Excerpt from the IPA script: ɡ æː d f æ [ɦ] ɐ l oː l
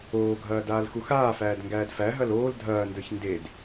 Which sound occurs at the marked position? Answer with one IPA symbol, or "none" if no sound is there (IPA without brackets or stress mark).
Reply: ɦ